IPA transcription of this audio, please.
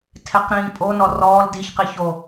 tʰ e q ɾ ĩː pʼ o n ɔ r ɔː l d i ç q i ç o

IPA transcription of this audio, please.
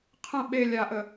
qʰ ə̃ ɓ e lʲ a ʔ ə

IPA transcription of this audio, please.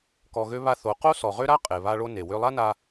k ɔ˧ ɣ ø˦ β a˦ θ o˨˦ q o˦ s ɔ˨ ʁ ø˦ ɾ a˦ qʼ e˨ β a˦ ɭ o˦ n e˨ w ø˧ lˠ a˦ n a˧

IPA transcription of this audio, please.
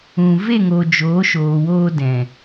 ũ˨ v e˦˨ ŋ o˨ d͡ʒ oː˨˦ ʃ oː˨ w oː˧ d ɛ̃˨

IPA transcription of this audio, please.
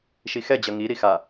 ʃ i x ɛ d͡ʑ ʌ ŋ i ɾ i x a

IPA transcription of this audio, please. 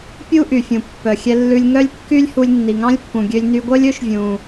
pʲ u˥ ʔ y˩ fʲ ũ˩ pː œ˩ xʲ ɛ˧ lː ʉ˧ lʲ ŋ œ˥ lʲ kː y˥ lʲ h u˧ lʲ nː i˩ ŋ ɑ̃˥ lʲ pː ũ˩ ɡʲ ø˧ lʲ n y˧ ɡʷ œ˥ lʲ ɵ˥ ʃ vʲ ũ˩

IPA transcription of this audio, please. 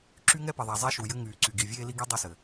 ǁ y˦ ŋ ɛ˦ p ɘ˨ ðˤ a˨ zˤ ɛ˦ ʃ u˨ j ɘ˦ ŋ yː˨ ǀ y˨ ɡ i˨ vʲ eː˦ l i˦ ɡ i˦ dˤ y˦ s ɘ˨

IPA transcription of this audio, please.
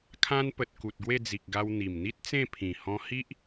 kʰ ã˧ n p ə˨ t̚ k u˨ t̚ ɡ w e˥˧ d͡z i˨ k̚ ɡ a˧ w n̪ i˨˩ m n̪ i˦ t̚ t͡s ẽ˥˧ pʰ ĩ˨˩ h ɔ̃˧ h i˦ ʔ

